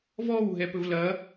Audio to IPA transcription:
v ɔ w ɦ ɛ p ɵ v l ɐ

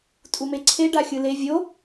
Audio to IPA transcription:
tʼ u m e ǀʰ e ɖ a xʲ ɯ l e vʲ o

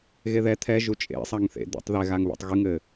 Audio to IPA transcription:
ɣ e ð ɛ t̪ʰ ɛ ʒ u t͡ʃʼ ḛ sˤ a ŋ θ ḛ d̪ ḛ tˤ ð ɛ ɣ a ŋ β ṵ tˤ ɣ ɨ ŋ ɘ

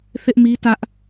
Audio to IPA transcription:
θ ɪ˦ ʔ m i˦ t ä˦ ʔ

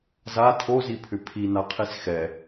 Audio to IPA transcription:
z a tʰ o z i pʰ ʏ pʰ i n a qʰ i s x ɛ

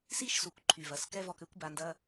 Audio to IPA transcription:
s i˦ ʃ s u˨ kʷ ǃʰ y˨ v ɐ˨ s k ɛ˦ v ɔ˧ k ø˦ kʷ b a˧ n d ɐ˦

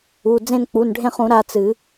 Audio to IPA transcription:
u˩˧˩ d͡z ẽ˦˨ n k͡p u˩˧˩ n ɖʱ ẽ˦˨ χ ũ˨˩˦ ɾ a˦˨ t͡s ɨ˨˩˦

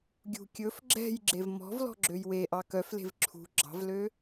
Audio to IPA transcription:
ɡʲ ṳ kʲ ɵ f ɡ͡ǁ ɛ̤ j ɡ͡ǁ e v m ɔ̤ v l ɔ̤ ɡ͡ǁ ø j w e ʔ ɑ k œ f l e̤ v ǁʰ ṳ ɡ͡ǁ ɑ̤ v l ø

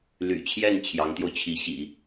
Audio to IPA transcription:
l y̰˨˩ t͡ɕʰ j ɛ˥˩ n t͡ɕʰ j ɑ˧˥ ŋ t̪ j o˧ ʊ̯ t͡ɕʰ i˧˥ ɕ ḭ˨˩˦

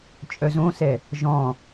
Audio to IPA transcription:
t͡ʃʼ œ z õ s ɛ | ʒ ɔ̃

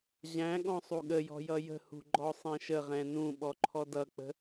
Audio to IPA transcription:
ʑ æ̃ ɠ ɔ̃ sˤ u ɠ ə j ɔ̤ j ʌ j ə̤ h ṳ ɡ͡ǃ ɔ sˤ ɛ̃ ʃ ə ʁ ɛ̃ n ũ ɓ ɔ ǃʰ ɔ d ʌ k͡p ə̤

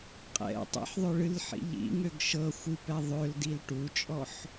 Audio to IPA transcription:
qʼ ɛ̰ tˤ ḭ ħ ðˤ ø ɭ ɨ l ħ ḭ ʎ ḭ ŋ ø ɡ ʃ ɤ xʷ ɨ p ɛ ðˤ ø l d i l ʈ u t͡ʃʼ ɔ ħ

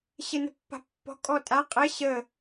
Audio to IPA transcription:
ɕ ɘ n ə̤ pː a̤ pː ɔ̤ kʼ ɔ tʼ a qʼ ɘ ɕ ə

